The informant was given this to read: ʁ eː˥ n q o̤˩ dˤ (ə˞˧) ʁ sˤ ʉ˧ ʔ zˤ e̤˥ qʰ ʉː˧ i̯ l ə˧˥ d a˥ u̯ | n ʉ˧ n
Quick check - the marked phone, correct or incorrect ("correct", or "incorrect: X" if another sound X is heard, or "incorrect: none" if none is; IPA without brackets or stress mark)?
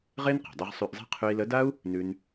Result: correct